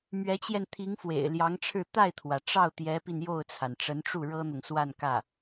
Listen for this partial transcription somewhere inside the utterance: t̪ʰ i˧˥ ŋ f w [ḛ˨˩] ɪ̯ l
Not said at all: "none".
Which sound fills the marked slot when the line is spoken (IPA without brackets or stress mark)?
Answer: ḛ˨˩